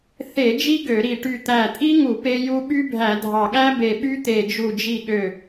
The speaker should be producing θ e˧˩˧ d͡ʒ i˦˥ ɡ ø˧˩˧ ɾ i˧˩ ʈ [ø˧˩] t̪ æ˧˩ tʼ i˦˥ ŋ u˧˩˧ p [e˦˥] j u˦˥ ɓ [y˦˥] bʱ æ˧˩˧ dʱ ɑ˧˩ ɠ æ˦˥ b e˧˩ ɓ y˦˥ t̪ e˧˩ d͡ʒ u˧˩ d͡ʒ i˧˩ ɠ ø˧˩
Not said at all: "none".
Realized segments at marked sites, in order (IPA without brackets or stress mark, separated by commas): y˧˩, e˦˥, y˦˥